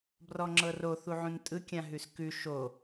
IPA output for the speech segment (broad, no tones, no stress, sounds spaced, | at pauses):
b r ɔ ŋ͡ǁ ɤ r o θ u ʕ ũ n tʼ ɯ kʲ ã ɦ ʉ s k ʉ ʃ o